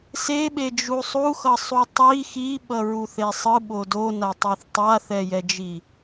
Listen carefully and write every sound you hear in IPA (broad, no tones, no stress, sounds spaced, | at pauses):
s e ɓ e d͡ʒ u sˤ u x ʌ sˤ u tˤ i x i ɓ ʌ ɹ u θ e sˤ ɯ ɓ o d o n a tˤ e θ tˤ a θ ɛ j ɛ d͡ʒ i